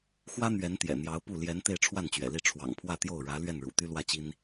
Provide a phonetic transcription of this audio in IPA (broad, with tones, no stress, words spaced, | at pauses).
xwä˥ n̪ɥɛ˧˥nt̪jɛ̰˨˩n̪jɑ˧˥ʊ̯pu˥˩ ljɛ˧˥n t̪e˥˧ɪ̯ʈ͡ʂʰwa˥˩nt͡ɕɥɛ̰˨˩li˥˩ ʈ͡ʂʰwɑ̰˨˩ŋpʰwä˥˧t̪jo˥˩ʊ̯ɻä˧˥ lɥɛ˥˩nɻṵ˨˩ t̪y˥lwä˥˩t͡ɕi˥n